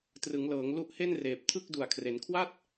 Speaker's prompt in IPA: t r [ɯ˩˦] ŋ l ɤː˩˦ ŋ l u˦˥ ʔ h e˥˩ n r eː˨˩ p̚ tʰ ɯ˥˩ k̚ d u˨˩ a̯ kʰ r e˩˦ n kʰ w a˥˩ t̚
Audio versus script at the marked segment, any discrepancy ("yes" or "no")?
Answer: no